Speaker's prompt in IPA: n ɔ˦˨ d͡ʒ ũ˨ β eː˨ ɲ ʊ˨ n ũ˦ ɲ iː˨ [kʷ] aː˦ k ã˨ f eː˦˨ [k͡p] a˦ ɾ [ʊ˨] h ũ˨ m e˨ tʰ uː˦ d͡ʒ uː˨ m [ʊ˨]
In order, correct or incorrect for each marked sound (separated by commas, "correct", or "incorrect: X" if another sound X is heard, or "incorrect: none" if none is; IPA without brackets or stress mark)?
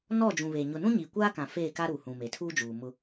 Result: correct, incorrect: k, incorrect: u˨, incorrect: ʊ˦